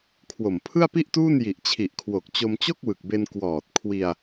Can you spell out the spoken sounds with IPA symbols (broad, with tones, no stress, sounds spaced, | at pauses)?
kʰ w o˨˩ m pʰ ɯ˥˩ a̯ p i˥˩ ʔ t uː˥˩ n j i˨˩ ʔ t͡ɕʰ i˨˩ ʔ kʰ w o˨˩ k̚ t͡ɕ o˧ m t͡ɕ o˥˩ k̚ w ɯ˨˩ k̚ b e˧ n k w ɔː˨˩ t̚ kʰ w i˧ a̯